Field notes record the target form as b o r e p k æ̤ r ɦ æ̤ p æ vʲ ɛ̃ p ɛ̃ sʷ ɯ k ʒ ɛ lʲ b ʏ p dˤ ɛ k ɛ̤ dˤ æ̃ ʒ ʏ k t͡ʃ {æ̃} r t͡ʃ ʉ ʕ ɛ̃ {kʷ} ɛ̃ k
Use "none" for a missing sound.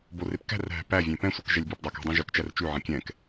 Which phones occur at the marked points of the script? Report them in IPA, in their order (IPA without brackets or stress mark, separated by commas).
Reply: æ, kʲ